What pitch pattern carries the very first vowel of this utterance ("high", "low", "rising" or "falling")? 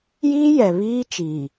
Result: high